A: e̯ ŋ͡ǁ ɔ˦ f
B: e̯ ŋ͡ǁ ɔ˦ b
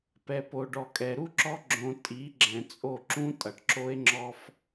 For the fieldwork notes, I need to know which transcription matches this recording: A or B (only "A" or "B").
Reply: A